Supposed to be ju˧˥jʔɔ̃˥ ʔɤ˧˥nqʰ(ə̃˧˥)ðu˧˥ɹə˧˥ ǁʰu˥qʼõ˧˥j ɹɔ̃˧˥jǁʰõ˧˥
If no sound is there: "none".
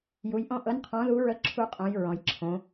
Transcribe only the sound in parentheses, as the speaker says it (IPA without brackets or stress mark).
ɔ̃˧˥